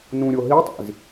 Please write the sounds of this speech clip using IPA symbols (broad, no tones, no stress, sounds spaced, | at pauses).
n ũ ɾʲ o ɦ i tˤ ḭ z